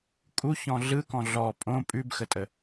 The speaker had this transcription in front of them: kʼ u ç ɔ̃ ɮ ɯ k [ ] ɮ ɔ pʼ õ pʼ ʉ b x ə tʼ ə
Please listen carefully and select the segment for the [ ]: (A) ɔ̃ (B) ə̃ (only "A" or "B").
A